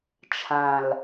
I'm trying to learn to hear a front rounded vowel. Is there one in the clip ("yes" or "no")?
no